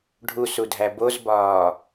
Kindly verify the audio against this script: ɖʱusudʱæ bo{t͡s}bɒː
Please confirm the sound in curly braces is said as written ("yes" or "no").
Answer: no